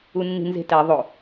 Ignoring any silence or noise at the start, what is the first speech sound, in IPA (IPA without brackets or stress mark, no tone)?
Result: u